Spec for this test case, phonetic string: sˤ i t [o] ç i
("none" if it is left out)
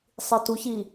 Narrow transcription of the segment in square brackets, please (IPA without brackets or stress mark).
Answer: u